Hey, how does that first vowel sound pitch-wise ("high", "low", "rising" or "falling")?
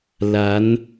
rising